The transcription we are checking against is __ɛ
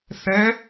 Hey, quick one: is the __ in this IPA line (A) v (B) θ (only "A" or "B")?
B